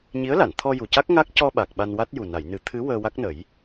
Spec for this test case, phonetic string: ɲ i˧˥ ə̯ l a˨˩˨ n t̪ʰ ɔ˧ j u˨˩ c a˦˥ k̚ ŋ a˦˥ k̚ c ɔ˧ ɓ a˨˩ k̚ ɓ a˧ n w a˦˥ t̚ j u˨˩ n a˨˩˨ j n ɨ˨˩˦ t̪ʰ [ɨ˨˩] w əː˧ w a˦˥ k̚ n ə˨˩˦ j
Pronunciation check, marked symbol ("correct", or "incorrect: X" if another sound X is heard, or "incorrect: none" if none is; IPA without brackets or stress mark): incorrect: ɨ˧˥